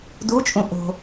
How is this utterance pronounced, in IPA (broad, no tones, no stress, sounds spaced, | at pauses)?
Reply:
d u t͡ʃʼ ũ ʔ o̤